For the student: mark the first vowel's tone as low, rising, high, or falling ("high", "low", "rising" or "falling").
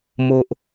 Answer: high